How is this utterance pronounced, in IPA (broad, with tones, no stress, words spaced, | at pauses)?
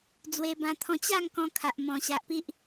d͡zwe˧bã˧t̪ʰɔ̃˧ t͡ɕa˥˧ŋ kɔ̃˧ kʰa˨ʔmɔ̃˨˩ ɕa˨ʔpi˦ʔ